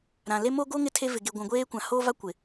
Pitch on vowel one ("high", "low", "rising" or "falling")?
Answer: low